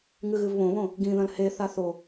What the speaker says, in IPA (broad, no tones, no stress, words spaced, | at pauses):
ŋɨɣɨvβõβõ | ɡĩðɐ̃l he θaθo